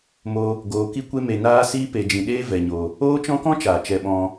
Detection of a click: absent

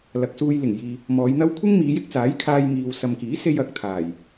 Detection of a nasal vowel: absent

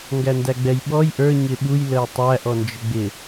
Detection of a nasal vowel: absent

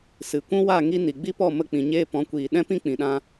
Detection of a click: absent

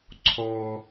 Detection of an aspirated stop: present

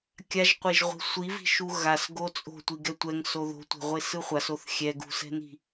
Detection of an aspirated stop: absent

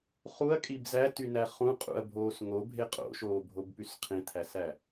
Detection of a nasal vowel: present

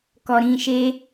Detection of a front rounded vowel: absent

